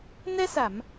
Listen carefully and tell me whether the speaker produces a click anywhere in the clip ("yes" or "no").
no